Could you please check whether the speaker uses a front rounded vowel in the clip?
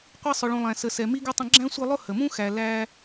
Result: no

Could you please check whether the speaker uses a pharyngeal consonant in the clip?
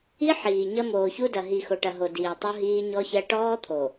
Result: yes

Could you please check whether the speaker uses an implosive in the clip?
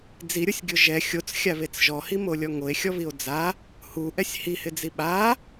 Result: yes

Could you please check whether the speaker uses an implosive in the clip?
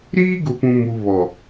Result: no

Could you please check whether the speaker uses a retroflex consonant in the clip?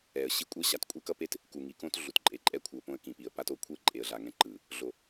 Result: no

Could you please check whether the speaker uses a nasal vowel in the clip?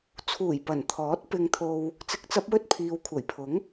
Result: no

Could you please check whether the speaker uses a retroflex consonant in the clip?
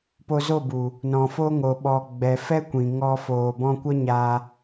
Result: no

